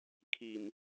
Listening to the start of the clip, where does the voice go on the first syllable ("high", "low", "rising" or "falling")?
low